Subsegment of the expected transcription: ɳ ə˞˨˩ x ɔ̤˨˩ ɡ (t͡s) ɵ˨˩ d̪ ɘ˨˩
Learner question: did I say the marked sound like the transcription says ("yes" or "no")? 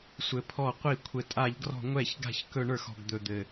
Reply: no